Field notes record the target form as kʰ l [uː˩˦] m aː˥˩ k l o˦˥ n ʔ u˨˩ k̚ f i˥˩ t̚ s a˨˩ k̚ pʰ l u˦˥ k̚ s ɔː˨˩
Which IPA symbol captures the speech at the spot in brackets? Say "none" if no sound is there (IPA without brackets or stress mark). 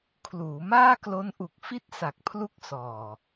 uː˩˦